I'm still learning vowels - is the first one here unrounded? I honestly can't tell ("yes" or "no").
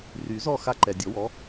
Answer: no